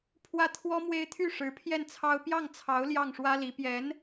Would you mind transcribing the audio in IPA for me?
pʰ w ä˥˩ t̪ʰ w ɔ˥ m w e˥ ɪ̯ t̪ʰ y˥˩ ʂ ɻ̩˧˥ pʰ j ɛ˥˩ n t͡sʰ ɑ˥ ʊ̯ p j ɑ˥˩ ŋ t͡sʰ ɑ˧˥ ʊ̯ l j ɑ˥˩ ŋ ʂ w ä˥ l i˧˥ p j ɛ˧˥ n

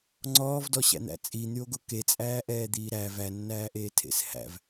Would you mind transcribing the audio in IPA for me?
ŋ͡ǀ ɔː v d ɔ ɕ æ̰ n̪ æ̰ t͡sʼ i n̪ y o̯ ɡ o k e t͡sʼ æː ʔ ɛː d̪ iː ɾ æ v æ nː æː ʔ eː tʰ ḛ s h æ̰ v

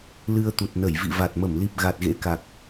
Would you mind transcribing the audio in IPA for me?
l ɨ˧ ə̯ t̪ u˨˩ t̚ n ə˧˩ j v ḭ˧˨ v a˨˩ t̚ m ə˧˩ m l i˨˩ p̚ ɣ a˨˩ t̚ ɣ ḛ˧˥ k a˨˩ k̚

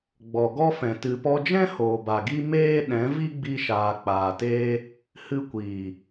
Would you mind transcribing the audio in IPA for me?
ɡ͡b ɔ˨ ɡ ɔ˦ f ɛ̃˨ t ɨ˨ p ɔ˧ d͡ʒ ɛ̃˦ h oː˨ b a˨ ɡ i˦ m eː˦ ɗ ɛ̃˨˦ v i˦ ɡ͡b i˧ ʃ aː˨ k͡p aː˨ t eː˦ | h ɨ˧ kʷ iː˨

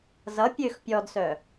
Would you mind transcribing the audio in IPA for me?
z ʌ pʲ ø x pʲ ɔ d s œ

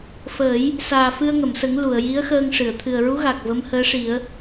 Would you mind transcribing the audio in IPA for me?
f əː˨˩˦ j | s aː˨˩ f ɨ˧ ə̯ ŋ ə˨˩˨ m s ə˨˩˦ ŋ l u˨˩˨ ə̯ j i˧˥ ə̯ x əː˧ ŋ ʂ ɨ˨˩˨ ə̯ t̪ʰ ɨ˨˩ ə̯ ɹ u˧˥ ɣ a˨˩ k̚ v ə˧˥ m h əː˧˥ ʂ i˨˩˦ ə̯

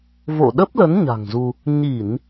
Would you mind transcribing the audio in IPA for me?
v o̰˧˨ ɗ ə˦˥ p̚ l ə˨˦ n ɲ a̤˨˩ ŋ z u˧ | ɲ i˧˩˨ n

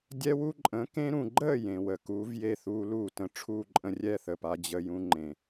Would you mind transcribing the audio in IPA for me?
dʲ ɛ˦ w u˦ ǃʼ ə̃ː˨˥ k ẽ˦ ɾ ũ˨ ɡ͡ǃ əː˥˨ j ẽ˨ w ə˨ k uː˨˥ v j e˥˨ θ uː˦ l uː˥˨ t ə̃˨˥ ʈ͡ʂʰ uː˥˨ ǃʼ ə̃˦ rʲ ɛ˥˨ θ əː˨ p a˦ d͡ʑ ə˦ j ũ˦ ŋ͡ǃ ẽ˨

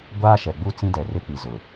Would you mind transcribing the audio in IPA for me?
ɡʷ aː˦ ʃ ɛ˨ ɡ͡b u˦ t͡s ĩ˦ d ɛ˨ r ɪ˦ k͡p i˨ z ʊ˨

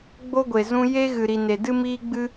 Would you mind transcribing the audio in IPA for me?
ɡ͡b o˦ ɡʷ e˨ z ũ˧ j e˦ ɣ ɨ˨ ɾ i˨ n e˨ d ɨ˦ m iː˦ ɡ͡b ɨ˦

